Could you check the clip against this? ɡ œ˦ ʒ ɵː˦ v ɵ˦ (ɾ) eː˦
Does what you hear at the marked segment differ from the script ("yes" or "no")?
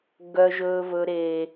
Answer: no